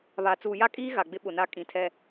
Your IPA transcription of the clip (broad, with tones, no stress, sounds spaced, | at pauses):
β a˨ t͡s uː˨ j a˦ kʼ iː˦ ɣ a˨ ɡ͡b ɪ˦ ɓ ʊ˨ n a˦ kʼ ĩ˨˦ tʰ ɛ˦